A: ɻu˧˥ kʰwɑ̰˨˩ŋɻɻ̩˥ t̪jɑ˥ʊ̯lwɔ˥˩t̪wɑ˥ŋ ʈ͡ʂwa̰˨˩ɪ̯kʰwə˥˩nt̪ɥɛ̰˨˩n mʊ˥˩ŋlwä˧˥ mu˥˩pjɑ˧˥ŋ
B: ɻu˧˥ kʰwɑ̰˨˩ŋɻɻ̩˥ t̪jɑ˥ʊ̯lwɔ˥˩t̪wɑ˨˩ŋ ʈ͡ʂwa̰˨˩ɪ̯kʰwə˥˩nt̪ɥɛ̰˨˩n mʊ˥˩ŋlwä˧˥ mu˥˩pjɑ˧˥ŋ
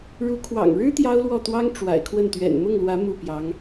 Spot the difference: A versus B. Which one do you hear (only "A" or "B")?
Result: A